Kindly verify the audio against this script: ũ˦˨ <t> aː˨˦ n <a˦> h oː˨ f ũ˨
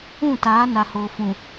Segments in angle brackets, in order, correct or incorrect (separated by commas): correct, incorrect